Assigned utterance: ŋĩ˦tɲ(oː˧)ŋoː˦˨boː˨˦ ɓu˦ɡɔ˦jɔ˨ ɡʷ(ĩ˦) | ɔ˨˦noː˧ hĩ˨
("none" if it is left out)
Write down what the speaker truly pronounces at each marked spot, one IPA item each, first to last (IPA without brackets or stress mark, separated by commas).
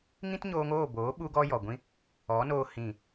oː˧, ĩ˧